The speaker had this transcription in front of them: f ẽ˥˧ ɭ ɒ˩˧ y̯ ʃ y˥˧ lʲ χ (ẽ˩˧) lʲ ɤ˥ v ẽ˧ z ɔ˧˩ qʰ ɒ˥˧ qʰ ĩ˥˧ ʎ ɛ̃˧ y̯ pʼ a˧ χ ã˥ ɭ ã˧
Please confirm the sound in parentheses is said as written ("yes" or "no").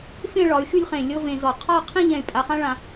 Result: no